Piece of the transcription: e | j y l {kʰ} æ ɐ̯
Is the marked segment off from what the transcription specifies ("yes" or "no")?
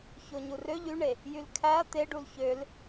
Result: no